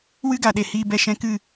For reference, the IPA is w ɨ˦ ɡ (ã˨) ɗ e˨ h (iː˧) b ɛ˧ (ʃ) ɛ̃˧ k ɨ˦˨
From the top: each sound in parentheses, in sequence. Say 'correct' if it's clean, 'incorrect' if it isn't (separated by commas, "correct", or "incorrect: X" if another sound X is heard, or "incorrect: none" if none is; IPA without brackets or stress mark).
incorrect: a˨, correct, correct